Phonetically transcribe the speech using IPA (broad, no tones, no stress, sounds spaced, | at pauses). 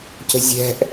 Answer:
c ə̤ zʲ ɛ̤ ʔ